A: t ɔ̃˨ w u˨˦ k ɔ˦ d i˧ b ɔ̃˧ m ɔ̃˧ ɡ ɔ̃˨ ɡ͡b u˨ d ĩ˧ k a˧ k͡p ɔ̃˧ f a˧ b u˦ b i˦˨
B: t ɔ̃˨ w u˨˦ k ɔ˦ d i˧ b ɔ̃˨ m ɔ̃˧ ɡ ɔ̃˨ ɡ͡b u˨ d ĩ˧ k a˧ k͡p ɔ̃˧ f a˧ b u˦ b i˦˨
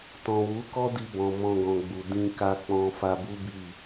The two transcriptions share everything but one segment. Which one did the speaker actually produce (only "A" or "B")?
B